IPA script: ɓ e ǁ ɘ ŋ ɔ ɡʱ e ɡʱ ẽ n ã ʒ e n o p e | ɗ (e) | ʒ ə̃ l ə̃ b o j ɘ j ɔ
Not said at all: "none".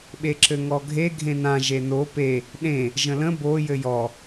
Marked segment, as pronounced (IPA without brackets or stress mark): ẽ